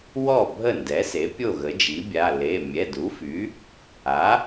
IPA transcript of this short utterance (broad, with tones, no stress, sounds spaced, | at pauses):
w ɔ˥˩ bʱ ə˥˩ n d ɛ˩˥ s e˩˥ pʲ o˥˩ ɣ ə˩˥ d͡ʒ i˩˥ bʲ a˩˧˩ l e˩˧˩ mʲ ɛ˩˧˩ d u˩˥ f y˩˥ | a˩˥